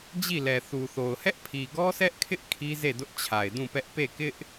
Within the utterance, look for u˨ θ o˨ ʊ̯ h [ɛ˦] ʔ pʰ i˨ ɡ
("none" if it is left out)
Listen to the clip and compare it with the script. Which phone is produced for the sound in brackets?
ɛ˦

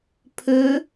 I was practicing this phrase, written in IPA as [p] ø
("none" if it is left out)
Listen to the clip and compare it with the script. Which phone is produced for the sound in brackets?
pʰ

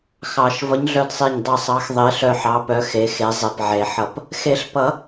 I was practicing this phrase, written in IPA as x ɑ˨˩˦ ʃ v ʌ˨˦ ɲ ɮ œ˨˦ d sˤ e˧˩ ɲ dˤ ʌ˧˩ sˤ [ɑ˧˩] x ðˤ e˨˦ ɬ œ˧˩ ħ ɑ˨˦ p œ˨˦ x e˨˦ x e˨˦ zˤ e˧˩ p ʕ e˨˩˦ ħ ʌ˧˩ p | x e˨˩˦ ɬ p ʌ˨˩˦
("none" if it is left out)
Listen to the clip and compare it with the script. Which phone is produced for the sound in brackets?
ɑ˨˦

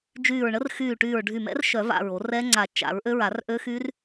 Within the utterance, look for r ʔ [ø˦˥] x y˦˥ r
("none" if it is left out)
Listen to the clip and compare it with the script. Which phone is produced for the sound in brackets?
ø˦˥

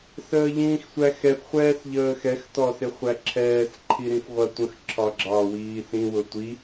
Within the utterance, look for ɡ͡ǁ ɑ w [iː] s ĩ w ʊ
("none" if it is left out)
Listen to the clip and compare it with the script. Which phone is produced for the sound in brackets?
iː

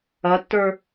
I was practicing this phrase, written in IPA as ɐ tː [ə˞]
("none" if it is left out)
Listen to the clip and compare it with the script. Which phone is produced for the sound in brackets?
ə˞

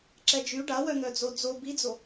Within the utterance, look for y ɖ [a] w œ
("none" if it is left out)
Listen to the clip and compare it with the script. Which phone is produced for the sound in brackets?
a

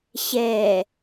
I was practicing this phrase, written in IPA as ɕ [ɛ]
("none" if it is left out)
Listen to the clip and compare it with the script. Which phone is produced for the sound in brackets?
ɛ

